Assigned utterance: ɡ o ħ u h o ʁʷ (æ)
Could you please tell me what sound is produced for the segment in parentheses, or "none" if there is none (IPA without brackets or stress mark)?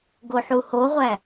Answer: æ